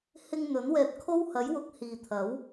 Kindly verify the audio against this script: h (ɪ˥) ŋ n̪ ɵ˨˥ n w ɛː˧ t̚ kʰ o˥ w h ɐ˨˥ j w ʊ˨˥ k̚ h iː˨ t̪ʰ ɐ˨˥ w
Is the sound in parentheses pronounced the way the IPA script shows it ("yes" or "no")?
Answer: no